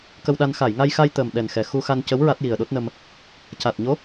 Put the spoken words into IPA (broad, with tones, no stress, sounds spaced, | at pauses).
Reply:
k ə˧ w ɗ a˧ n x a˨˩˨ j ŋ a˧ j x a˧ j t̪ əː˨˩ m ɗ ɛ˨˩ n x ɛ˨˩ x u˧ x a˧ n c ə˧˥ w ɹ a˦˥ t̚ j i˨˩ ə̯ ɗ o˦˥ t̚ n ə˧ m | c a˨˩ t̚ ɲ o˧˥